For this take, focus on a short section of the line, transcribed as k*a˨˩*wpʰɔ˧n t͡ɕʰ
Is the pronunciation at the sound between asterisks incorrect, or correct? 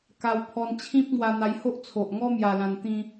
incorrect